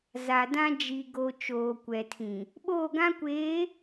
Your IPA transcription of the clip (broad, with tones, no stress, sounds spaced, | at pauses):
z a˨ d ã˦ d͡ʒ i˨ ɡ o˨ t͡ʃ oː˨ kʷ ɛ˨ tʰ ĩ˨ | ɓ oː˦˨ ɡ ã˦ kʷ eː˨˦